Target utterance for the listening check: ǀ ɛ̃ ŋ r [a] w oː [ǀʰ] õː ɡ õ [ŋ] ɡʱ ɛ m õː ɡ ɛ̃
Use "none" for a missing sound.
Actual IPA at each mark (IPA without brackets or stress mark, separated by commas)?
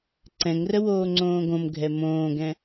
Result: ə, ŋ͡ǀ, m